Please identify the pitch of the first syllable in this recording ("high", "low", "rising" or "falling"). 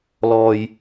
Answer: low